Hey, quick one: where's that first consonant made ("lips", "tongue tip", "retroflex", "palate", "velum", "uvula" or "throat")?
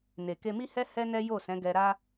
tongue tip